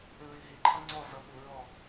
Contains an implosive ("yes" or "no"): yes